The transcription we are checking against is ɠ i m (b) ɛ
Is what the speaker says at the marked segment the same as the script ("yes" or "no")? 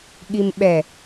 no